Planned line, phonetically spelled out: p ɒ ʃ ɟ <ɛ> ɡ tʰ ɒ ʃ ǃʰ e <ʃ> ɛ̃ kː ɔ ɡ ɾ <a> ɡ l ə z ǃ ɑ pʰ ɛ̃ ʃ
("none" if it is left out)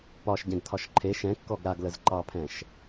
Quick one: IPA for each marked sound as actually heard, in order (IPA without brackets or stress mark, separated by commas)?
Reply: ɛ̃, ʃ, a